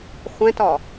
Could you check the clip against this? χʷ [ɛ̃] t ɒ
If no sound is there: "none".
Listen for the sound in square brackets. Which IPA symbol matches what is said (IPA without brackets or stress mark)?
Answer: ɛ̃